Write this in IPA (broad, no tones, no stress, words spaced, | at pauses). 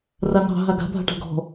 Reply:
ranɑ̤ ɦaɡa̤ bʱa̤ʈa̤ɡɔ̤